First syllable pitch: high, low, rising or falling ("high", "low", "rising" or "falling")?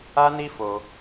high